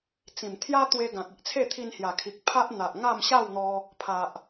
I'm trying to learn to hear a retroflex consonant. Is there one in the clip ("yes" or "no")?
no